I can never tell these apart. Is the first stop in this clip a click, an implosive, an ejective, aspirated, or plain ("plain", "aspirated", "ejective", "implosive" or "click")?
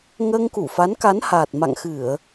plain